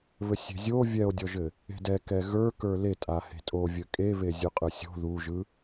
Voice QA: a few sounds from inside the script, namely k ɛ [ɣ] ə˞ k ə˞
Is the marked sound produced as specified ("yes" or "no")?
yes